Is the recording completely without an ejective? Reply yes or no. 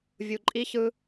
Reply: no